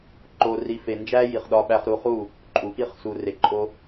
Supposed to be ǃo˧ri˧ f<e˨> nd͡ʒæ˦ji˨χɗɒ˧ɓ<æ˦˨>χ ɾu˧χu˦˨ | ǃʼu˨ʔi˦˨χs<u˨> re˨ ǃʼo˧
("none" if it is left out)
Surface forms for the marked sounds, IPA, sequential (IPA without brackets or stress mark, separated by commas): e˨, æ˧, u˨